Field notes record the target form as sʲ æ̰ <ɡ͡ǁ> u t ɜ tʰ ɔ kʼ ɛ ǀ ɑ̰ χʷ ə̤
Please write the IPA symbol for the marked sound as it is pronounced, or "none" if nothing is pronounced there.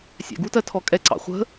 ɡ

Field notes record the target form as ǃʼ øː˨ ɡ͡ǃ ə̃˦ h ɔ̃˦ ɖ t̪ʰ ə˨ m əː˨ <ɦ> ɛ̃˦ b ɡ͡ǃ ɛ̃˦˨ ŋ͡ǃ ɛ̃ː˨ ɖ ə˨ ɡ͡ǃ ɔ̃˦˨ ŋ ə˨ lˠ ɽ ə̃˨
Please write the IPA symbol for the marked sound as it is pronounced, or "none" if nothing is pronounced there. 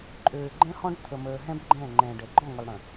ɦ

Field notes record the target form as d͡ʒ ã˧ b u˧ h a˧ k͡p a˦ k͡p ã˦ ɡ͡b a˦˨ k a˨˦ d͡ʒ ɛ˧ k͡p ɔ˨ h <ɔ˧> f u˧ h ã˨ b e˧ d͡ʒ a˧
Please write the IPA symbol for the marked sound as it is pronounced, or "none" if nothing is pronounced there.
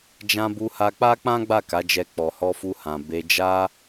ɔ˧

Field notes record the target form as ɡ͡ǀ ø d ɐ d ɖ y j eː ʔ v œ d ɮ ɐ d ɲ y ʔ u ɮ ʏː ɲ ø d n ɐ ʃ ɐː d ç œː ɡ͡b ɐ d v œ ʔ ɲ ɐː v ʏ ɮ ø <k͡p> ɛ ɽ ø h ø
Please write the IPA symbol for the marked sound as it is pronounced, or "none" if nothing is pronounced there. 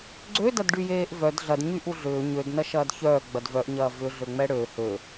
ŋ͡m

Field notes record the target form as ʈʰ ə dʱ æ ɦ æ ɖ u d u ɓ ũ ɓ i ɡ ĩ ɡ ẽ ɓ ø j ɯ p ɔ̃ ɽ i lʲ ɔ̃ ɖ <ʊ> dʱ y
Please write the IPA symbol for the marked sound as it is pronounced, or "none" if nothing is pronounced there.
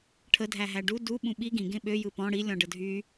ə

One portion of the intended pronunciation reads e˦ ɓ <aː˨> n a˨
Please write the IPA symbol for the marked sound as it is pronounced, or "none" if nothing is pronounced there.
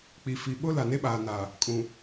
aː˨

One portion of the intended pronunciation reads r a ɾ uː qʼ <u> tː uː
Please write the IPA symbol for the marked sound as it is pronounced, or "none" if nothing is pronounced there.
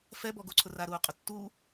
ʊ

